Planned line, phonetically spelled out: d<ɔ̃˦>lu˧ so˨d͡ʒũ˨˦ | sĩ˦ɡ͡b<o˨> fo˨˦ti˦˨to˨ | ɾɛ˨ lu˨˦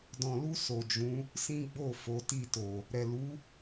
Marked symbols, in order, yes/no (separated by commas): no, no